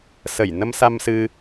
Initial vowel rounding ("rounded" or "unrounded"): unrounded